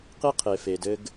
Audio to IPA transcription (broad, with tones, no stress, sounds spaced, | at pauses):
q i˦ qʰ e˨ f e˨ d ɘ˦ ɡ